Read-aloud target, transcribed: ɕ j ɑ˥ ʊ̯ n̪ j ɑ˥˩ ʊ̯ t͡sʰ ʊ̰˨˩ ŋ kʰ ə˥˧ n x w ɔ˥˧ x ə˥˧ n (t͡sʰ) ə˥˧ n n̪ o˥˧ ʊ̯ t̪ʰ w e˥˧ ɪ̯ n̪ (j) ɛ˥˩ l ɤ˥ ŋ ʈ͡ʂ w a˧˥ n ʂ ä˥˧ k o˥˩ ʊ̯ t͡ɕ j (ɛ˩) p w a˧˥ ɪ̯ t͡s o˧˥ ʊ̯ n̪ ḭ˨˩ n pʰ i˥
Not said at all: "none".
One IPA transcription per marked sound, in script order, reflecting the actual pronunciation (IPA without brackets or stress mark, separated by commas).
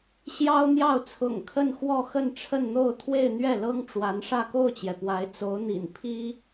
ʈ͡ʂʰ, ɥ, ɛ˩